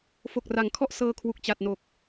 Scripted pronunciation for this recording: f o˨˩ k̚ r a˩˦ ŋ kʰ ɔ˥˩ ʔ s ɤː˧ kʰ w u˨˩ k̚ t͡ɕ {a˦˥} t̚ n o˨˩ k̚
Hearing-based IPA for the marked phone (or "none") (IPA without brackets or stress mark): a˨˩